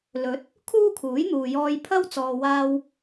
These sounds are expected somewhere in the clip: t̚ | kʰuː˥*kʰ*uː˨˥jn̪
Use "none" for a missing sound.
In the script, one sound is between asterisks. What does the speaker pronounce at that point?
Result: kʰ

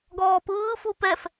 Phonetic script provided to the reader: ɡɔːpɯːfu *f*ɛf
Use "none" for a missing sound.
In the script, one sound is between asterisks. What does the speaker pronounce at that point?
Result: p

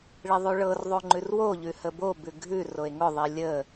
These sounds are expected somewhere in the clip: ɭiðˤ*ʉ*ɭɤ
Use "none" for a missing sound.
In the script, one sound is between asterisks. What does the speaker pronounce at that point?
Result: ʉ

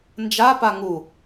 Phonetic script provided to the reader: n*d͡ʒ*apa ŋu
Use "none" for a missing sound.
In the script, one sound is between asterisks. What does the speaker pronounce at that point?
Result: d͡ʒ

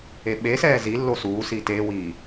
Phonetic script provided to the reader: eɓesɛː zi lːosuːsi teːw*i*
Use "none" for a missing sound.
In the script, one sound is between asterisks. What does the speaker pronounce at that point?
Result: iː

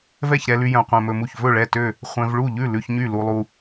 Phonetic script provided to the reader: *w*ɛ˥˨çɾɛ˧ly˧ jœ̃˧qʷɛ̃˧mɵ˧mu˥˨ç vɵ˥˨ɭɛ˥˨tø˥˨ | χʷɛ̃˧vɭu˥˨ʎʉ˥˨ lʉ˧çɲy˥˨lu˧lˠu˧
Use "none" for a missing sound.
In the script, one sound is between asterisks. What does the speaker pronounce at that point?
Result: v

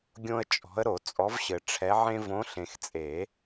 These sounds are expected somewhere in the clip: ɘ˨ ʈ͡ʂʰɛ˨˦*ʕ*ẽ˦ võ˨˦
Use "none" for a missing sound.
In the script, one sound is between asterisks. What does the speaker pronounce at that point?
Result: ʕ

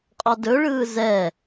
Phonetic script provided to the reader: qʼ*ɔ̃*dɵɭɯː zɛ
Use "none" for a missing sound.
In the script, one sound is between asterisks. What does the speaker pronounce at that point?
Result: ɔ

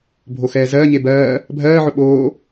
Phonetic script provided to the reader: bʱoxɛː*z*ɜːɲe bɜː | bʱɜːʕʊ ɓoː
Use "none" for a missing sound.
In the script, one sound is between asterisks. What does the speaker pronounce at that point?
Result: z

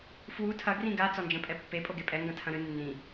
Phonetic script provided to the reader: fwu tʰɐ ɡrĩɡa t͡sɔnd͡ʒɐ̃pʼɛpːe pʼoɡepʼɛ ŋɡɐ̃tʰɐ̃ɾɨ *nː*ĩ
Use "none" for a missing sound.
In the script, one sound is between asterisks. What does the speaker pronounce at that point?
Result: nː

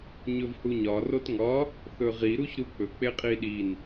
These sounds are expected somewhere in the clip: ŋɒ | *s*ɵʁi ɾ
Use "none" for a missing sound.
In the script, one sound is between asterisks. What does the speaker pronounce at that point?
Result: θ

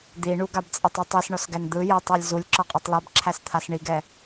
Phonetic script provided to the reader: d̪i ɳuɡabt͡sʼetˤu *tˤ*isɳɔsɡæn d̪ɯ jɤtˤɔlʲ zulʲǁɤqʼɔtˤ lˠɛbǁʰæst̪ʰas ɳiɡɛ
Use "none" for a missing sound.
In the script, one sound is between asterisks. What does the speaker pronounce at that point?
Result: tˤ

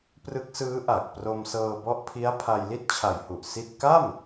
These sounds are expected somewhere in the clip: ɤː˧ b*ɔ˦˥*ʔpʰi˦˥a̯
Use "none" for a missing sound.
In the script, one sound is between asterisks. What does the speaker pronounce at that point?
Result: ɔ˦˥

